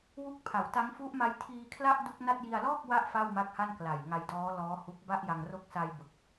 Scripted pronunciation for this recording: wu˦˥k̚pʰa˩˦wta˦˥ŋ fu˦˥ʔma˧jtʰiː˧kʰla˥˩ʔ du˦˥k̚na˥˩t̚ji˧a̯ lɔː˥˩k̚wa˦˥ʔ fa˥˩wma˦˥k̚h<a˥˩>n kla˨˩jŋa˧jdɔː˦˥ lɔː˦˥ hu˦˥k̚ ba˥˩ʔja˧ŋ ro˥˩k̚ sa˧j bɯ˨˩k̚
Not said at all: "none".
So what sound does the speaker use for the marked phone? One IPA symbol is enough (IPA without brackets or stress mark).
a˥˩